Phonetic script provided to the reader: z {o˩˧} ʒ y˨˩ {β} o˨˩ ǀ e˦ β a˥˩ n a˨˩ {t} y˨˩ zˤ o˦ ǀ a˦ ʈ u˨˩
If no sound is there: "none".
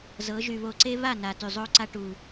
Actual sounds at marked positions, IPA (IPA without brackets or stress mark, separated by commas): ɤ˩˧, β, t